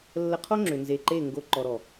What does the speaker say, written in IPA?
lːə˧qʰo˦ ŋ͡ǁʏ˨nze˨ǃe˦˨ ŋɡo˧ ǃɔ˨ɾɔ˨

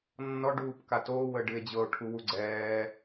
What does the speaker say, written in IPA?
nːɔɖuːpka toːwəːɖɨe̯ d͡ʑɤo̯ʈʰuwu ɡ͡ǀɛː

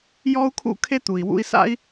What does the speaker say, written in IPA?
jɔ˥u̯kʰṵ˥kʰe˥ t̪u˩i̯wṵ˥i̯ sa̰˥i̯

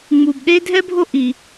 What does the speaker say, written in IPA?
ŋ͡mu˧bɗe˥ dʱɛ˥bʱo˥ ʔi˧

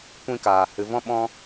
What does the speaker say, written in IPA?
kʷĩ˧kaː˨ hɨ˨vɔ̃˧ɓɔ̃˧

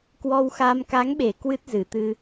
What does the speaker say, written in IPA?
kwɔ˧wxa˧m ka˨˦ŋɓe˧˩ kwɨ˦˥t̚zɨ˧˩t̪ɨ˧

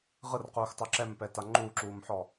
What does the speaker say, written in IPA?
ʁɯrquːxtˤo ǁɛmpɛta ŋ͡ǃuːǁuːmħɔ

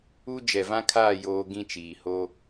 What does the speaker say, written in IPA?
u˦ d͡ʒɛ˨vã˦kʰaː˦˨ joː˦ ɡĩ˦t͡ʃiː˨ ho˦

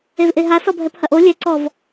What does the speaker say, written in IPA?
evʔeɦa sɔbʱɛphɐʔo lʲɛǀɔv

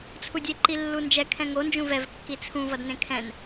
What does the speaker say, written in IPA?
t͡sʰudʲe ǃilːund͡ʒɛ kʰɛ̃ŋo nd͡ʒũvɛv kːit͡sʰũ vʌdnẽkʰɛ̃n

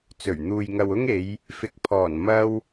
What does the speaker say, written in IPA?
t͡sɵ˨˩ɥn̪uː˨j ŋɐ˨wʊ˥ŋe˨˧j | fɪ˨k̚ pʰɔː˨˩n mɐ˥w

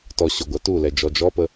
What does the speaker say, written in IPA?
tɔ ɕʊɡʷa tulɛ d͡ʒɔd͡ʒɔpə

